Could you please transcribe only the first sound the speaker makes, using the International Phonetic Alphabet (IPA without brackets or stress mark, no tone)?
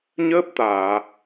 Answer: ɲ